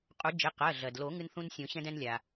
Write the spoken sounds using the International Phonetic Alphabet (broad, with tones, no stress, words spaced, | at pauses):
qʼu˨˩˦ d͡ʒɪ˩˧˩qɜ˩˧˩ɮɜ˩dlo˨˩˦ ŋɨ˦nθũ˦n sʲõ˨˩˦ɕɛ̃˦dɛ̃˦nlʲa˩